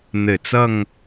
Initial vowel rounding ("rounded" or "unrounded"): unrounded